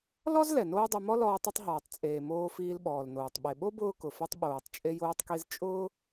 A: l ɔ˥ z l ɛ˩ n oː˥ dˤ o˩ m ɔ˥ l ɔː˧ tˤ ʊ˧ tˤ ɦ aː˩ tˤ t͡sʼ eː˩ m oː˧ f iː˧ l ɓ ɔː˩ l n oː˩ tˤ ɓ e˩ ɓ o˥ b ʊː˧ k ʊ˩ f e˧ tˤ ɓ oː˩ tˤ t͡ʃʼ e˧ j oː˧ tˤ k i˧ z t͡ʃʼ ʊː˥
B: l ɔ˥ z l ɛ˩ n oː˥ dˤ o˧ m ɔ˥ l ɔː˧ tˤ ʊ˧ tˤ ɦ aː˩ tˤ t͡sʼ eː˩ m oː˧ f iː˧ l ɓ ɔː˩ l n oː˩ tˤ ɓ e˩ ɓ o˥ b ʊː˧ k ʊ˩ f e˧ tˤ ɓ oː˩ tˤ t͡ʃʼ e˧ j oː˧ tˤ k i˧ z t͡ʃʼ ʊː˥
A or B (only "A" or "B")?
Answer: B